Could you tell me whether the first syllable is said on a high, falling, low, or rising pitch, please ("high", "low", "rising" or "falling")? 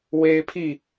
high